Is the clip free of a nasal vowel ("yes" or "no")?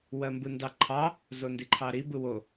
yes